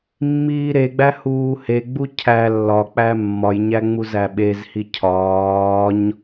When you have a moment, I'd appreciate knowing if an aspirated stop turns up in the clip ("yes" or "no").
yes